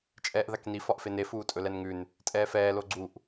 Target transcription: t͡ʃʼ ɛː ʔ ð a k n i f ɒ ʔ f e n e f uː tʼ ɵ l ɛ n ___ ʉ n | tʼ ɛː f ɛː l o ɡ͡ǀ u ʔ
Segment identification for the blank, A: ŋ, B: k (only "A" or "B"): A